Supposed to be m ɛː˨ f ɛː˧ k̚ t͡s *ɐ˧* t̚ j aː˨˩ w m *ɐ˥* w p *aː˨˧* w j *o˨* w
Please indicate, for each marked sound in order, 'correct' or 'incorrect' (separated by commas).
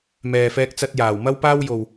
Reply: correct, correct, incorrect, correct